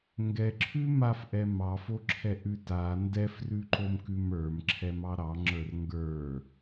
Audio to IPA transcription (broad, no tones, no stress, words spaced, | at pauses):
ŋɡɛǁʰʉ mafʔɛ mɑfoǁʰɛʔʉ ta ndɛfrʉǃomkʉm ə˞mǁʰɛmɑ ɾɑŋ͡ǁə˞r ŋɡə˞